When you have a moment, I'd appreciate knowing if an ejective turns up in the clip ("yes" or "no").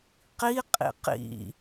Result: yes